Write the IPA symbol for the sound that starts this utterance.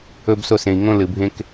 ɵ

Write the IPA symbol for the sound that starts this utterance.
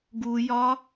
ɡ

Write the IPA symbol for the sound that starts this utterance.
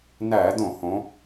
n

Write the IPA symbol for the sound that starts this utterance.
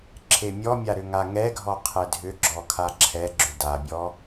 ǁʰ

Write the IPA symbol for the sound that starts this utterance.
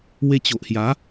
w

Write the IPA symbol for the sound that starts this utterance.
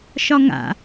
ʃ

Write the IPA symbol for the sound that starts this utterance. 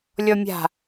lʲ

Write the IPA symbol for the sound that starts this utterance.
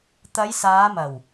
t̪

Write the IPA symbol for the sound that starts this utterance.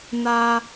n̪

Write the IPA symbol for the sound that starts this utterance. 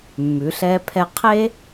mː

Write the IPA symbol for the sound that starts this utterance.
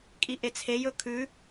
kʼ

